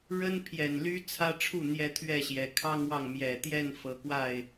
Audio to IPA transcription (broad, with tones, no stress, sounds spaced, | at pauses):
ɻ ə˦ n pʰ j ɛ˨˩ n l y˦ t͡sʰ ä˦ ʈ͡ʂʰ u˥˨ n̪ j ɛ˦ t̪ʰ ɥ ɛ˥˨ ɕ j ɛ˨˩ kʰ ɑ˦ ŋ w ɑ˨ ŋ m j ɛ˨˩ t̪ j ɛ˥˨ n f ɤ˨˦ k w a˥˨ ɪ̯